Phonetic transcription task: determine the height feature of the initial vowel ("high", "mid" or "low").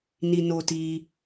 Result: high